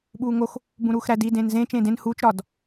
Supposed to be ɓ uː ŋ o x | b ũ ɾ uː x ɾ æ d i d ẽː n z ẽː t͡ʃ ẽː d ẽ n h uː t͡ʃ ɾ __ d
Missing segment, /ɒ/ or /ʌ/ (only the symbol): ɒ